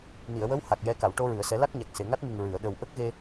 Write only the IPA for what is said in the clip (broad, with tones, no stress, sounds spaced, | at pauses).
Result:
n i˨˩˨ ə̯ w ə˧˥ w h a˨˩ k̚ j ɛ˧ k a˨˩˨ w ʈ o˧ ɹ ɨ˨˩˨ ə̯ s ɛ˨˩˦ l a˦˥ k̚ ɲ a˨˩ k̚ s e˨˩˨ ŋ a˦˥ t̚ m ɨ˨˩ ŋ ɹ ɨ˨˩˨ ə̯ ɗ ə˨˩ w ʔ ə˦˥ k̚ ɣ e˧